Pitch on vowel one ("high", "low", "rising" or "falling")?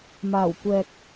low